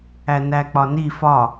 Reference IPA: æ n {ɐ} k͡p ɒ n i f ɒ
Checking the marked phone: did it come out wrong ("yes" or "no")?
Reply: yes